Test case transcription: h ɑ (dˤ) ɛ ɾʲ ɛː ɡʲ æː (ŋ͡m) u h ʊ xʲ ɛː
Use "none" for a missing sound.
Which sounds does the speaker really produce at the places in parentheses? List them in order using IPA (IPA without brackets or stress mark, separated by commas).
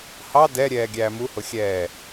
d, m